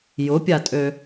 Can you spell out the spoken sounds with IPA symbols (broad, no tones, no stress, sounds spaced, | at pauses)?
j ʊ pʲ a tʼ ø